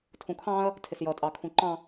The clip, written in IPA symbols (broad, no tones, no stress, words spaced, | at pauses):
tʰũkʰɑ̃ɐ̯ | tʰɪsjʌ tʼɑkʰũǃɑ̃